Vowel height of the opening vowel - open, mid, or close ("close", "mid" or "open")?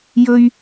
mid